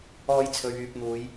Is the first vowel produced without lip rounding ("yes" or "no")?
no